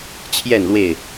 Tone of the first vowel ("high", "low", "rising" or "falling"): falling